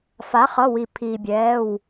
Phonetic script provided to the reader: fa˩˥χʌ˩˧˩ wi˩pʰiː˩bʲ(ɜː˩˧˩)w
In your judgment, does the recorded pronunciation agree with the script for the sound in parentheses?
no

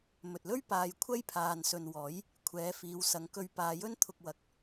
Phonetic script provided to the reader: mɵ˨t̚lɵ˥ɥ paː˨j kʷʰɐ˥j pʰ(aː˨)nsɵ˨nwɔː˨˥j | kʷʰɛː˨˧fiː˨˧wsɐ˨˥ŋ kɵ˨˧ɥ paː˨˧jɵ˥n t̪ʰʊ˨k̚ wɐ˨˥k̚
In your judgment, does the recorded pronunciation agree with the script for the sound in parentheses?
yes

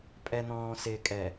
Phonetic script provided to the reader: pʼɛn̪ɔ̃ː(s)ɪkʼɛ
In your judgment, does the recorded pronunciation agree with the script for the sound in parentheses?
yes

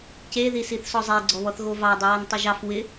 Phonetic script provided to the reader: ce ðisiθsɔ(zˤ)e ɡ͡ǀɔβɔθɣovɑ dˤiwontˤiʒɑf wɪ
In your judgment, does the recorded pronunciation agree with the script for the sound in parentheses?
yes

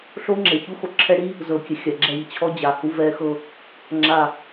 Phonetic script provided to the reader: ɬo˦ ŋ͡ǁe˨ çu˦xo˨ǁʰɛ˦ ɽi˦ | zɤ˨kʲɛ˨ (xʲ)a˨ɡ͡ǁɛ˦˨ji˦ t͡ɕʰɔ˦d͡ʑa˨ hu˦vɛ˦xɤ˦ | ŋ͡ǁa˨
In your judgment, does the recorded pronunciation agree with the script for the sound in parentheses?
yes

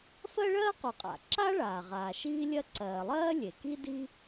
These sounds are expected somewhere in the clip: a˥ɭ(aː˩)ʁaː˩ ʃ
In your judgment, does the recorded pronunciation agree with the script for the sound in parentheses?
yes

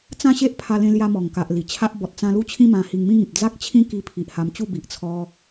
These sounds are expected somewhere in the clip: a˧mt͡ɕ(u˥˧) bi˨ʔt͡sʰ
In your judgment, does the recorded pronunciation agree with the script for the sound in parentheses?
yes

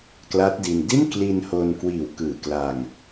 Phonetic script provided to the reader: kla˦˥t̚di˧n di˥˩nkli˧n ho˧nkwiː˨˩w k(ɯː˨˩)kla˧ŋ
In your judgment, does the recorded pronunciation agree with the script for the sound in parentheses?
yes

